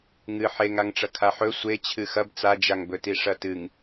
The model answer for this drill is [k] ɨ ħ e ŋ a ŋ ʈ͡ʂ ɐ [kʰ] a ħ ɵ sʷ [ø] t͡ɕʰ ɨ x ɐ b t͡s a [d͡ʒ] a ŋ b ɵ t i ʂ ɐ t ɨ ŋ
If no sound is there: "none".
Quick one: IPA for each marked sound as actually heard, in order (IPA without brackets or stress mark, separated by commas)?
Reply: ŋ, kʰ, e, d͡ʒ